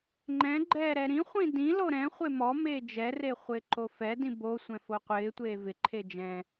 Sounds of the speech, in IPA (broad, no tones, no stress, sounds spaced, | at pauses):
ŋ͡ǃ ɛ̃ ɡ͡ǃ ɛː ɾ ɛ ɾ ĩ χʷ ĩ d ĩ l o ɾ ɛ̃ χʷ e m ɔ m eː d͡ʒ ɛ r e χʷ ɪː ǃ o f ɛ d ĩ b o sʷ ɛ̃ f o qʷ ɪː tʷ eː v ɪ ǃʰ e d͡ʒ ɛ̃